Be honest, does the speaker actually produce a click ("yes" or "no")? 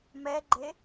yes